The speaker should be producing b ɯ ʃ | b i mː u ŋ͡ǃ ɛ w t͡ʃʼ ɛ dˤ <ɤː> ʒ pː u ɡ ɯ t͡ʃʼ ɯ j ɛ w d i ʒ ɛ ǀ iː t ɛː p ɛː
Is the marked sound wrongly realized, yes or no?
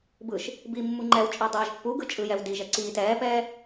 no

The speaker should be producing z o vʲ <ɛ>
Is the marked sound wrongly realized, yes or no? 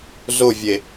yes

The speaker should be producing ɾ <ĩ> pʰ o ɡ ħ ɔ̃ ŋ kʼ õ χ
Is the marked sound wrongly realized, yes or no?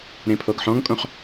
yes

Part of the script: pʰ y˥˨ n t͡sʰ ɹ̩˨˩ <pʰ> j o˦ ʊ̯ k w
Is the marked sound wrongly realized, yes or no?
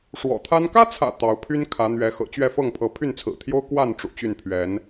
yes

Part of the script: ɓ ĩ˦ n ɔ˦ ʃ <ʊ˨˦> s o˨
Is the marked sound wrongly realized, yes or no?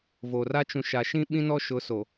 no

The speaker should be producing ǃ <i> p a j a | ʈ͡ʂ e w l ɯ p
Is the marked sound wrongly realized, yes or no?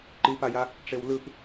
no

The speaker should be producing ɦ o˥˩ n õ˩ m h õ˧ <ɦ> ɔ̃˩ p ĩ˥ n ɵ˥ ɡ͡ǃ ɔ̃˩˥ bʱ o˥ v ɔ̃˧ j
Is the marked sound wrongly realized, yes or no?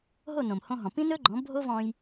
no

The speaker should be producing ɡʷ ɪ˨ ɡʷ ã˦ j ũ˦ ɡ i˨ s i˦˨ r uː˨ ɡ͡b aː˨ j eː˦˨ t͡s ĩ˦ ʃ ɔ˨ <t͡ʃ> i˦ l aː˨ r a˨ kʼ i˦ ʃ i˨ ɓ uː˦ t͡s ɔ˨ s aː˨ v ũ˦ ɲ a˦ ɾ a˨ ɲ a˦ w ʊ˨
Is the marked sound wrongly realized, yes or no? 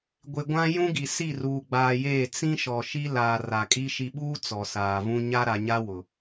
yes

